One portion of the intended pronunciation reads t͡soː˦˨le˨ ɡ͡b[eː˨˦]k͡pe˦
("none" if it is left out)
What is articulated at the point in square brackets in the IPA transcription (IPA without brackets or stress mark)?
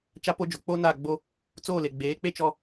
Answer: eː˨˦